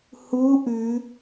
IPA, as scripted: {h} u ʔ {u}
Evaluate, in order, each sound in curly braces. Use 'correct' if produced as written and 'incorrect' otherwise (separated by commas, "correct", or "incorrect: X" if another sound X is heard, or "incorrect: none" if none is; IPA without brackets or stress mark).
correct, incorrect: ʉ